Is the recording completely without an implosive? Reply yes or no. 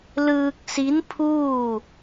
yes